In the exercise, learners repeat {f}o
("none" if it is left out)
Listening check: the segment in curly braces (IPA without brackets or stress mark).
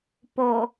p